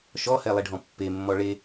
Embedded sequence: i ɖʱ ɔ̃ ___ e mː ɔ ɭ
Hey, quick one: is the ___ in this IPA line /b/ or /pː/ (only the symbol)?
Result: pː